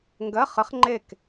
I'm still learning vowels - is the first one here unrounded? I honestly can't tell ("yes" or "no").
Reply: yes